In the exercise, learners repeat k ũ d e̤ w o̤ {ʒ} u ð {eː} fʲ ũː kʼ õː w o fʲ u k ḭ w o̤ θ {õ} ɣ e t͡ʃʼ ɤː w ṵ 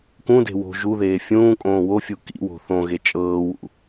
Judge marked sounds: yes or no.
yes, yes, yes

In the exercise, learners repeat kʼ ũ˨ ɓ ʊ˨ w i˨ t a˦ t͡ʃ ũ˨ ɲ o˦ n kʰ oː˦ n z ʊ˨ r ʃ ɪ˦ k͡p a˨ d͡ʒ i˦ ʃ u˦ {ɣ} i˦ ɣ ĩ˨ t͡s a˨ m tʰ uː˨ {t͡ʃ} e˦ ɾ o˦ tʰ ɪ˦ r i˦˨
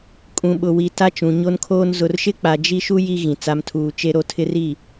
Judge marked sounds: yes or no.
no, yes

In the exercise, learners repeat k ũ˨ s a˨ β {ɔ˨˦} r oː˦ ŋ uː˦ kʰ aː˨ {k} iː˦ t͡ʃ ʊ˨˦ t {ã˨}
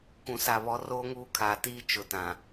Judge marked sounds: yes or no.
yes, no, yes

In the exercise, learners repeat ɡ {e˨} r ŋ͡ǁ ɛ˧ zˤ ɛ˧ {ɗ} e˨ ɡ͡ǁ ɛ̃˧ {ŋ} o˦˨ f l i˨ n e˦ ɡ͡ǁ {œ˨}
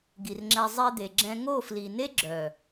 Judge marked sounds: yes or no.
no, no, yes, yes

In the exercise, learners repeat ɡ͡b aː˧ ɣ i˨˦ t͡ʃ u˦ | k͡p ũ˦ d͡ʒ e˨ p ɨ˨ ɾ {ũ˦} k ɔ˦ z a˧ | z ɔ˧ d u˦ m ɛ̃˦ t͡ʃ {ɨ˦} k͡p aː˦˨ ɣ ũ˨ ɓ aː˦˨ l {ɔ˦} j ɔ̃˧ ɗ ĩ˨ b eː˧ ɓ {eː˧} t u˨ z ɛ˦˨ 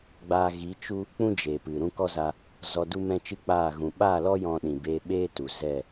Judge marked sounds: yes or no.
yes, yes, yes, no

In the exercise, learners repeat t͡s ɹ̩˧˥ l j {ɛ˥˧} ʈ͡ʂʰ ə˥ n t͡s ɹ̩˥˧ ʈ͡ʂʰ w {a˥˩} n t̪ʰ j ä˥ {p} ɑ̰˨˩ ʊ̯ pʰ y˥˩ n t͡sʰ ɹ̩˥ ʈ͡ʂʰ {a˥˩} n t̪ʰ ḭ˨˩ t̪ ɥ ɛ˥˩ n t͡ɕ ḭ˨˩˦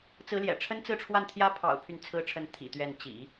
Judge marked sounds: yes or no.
no, yes, no, no

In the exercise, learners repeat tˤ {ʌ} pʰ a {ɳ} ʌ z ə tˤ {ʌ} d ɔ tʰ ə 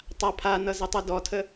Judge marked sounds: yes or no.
no, no, yes

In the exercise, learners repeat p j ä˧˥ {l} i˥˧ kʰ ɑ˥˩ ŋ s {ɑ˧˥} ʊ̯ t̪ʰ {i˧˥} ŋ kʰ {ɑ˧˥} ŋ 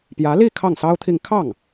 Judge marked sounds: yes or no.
yes, no, no, no

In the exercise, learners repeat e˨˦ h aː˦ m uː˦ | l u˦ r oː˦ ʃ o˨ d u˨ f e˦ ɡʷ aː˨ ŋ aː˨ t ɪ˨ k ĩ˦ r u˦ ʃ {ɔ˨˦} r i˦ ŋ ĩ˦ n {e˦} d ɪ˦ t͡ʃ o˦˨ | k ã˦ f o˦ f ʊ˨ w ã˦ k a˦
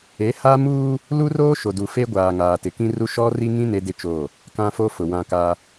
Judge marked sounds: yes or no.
no, yes

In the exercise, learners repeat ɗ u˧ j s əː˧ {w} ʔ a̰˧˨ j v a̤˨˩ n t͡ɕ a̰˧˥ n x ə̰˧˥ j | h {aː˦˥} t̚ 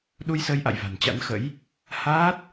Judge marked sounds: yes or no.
no, yes

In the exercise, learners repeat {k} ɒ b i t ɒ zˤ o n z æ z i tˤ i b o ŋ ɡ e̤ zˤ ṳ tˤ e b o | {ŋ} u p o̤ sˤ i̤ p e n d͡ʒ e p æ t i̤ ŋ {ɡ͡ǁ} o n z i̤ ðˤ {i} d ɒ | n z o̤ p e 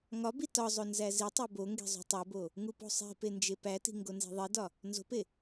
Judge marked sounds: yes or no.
no, yes, no, yes

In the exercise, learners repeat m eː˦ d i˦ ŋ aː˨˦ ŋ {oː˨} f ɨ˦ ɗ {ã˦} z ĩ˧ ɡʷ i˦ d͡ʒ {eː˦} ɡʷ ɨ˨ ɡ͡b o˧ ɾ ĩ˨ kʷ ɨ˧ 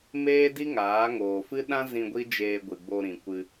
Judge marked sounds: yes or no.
yes, yes, no

